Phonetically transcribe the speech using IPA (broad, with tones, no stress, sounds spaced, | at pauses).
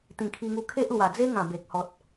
t̪ ĩ˨˩ kʰ i˧ ŋ u˧ kʰ e˦ ʔ l w a˨˩ d͡z e˦ ŋ ã˨˩ b e˨ k̚ h ɔ˨ t̚